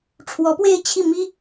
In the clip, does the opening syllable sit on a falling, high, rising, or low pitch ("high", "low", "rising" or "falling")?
rising